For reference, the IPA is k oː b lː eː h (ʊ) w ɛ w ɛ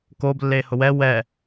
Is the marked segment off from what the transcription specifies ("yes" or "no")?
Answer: no